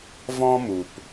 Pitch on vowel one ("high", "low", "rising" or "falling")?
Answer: high